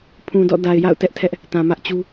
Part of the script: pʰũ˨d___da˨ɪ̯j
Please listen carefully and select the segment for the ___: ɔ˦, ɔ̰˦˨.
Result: ɔ̰˦˨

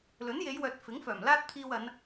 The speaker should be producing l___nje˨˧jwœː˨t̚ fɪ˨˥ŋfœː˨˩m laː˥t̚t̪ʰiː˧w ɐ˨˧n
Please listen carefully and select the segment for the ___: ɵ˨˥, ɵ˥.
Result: ɵ˨˥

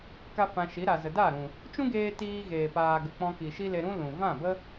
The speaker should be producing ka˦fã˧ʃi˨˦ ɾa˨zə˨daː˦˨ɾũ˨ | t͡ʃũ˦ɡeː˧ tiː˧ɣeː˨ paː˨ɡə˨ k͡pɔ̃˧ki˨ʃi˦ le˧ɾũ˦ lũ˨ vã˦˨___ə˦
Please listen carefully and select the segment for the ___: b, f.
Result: b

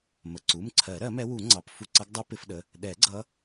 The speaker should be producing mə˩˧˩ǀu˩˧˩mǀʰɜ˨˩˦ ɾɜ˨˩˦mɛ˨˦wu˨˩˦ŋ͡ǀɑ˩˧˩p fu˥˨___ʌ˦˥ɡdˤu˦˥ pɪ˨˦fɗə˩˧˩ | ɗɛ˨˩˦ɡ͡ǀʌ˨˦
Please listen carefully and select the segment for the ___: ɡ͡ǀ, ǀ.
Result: ǀ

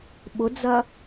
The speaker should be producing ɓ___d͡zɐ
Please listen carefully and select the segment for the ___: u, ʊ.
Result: ʊ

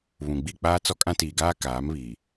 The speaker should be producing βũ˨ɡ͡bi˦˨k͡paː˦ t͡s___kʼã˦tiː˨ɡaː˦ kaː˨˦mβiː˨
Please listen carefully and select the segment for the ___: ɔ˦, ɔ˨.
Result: ɔ˦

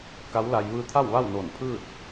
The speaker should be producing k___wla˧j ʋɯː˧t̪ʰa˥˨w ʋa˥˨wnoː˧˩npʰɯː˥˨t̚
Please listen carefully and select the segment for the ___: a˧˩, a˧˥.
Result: a˧˥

